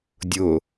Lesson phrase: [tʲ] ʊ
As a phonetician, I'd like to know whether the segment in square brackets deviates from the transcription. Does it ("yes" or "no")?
yes